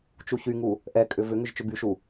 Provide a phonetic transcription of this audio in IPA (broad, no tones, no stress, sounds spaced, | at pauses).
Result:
t͡ʃ u ç y ŋ u | ʔ ɛ kʼ ʏ v ʏ ŋ ʏ ʒ t͡ʃ ʏ b y ʃ u